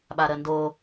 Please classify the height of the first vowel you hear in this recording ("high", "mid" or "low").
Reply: low